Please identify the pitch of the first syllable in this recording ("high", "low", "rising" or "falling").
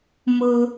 high